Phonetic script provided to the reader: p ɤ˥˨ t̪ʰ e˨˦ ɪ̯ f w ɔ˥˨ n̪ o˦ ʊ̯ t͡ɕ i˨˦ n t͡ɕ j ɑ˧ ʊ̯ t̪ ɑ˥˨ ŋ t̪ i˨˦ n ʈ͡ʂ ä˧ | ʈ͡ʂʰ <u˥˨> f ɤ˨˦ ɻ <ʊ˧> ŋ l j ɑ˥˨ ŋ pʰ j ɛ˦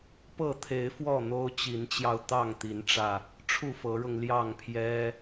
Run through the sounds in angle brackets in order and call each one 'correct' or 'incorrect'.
correct, correct

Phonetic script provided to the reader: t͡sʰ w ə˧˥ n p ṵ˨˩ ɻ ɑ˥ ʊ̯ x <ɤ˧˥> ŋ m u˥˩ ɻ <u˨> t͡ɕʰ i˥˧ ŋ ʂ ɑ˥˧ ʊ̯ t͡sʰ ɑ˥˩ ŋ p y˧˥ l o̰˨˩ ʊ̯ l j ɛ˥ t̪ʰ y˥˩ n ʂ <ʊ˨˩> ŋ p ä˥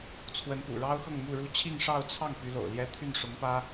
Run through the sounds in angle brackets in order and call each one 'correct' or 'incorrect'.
incorrect, incorrect, incorrect

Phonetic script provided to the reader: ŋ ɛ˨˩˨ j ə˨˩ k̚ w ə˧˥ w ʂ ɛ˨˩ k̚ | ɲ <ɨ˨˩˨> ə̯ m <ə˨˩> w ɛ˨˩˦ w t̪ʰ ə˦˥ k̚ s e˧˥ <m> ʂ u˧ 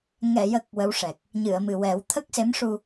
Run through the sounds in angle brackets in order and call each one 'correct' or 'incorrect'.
correct, incorrect, correct

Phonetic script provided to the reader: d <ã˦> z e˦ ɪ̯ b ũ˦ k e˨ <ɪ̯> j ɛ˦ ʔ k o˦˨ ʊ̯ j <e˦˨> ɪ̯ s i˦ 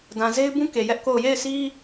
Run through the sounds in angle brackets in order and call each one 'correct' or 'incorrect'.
incorrect, incorrect, correct

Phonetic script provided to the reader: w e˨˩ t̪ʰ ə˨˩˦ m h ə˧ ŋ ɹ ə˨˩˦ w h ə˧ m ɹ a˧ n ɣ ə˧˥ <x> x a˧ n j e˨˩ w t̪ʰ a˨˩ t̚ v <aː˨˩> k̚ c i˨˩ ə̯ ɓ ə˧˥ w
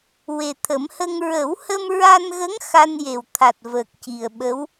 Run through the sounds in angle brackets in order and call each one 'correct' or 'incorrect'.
incorrect, incorrect

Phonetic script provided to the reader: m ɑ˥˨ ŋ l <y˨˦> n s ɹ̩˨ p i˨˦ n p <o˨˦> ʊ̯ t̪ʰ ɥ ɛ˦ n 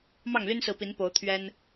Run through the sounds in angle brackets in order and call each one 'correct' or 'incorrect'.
incorrect, correct

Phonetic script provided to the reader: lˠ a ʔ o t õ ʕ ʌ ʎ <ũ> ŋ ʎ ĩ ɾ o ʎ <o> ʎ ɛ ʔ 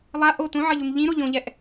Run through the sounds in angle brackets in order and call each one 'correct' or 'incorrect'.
incorrect, incorrect

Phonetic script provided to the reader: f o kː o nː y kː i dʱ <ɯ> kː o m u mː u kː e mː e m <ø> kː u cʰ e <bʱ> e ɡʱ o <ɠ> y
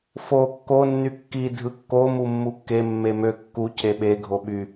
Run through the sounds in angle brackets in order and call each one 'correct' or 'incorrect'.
correct, correct, incorrect, incorrect

